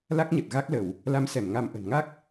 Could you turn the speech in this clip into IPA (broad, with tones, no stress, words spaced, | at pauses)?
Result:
la˦˥k̚ɲə˨˩t̚ ɣa˦˥k̚lə˧˩˨w | la˨˦msɛ˧˩m ŋa˧mʔə̤˨˩n ŋa˦˥k̚